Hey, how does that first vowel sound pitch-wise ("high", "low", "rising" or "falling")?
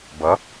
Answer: rising